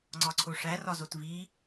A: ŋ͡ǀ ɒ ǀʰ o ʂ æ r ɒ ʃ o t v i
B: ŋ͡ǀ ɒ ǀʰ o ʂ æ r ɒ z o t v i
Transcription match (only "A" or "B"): B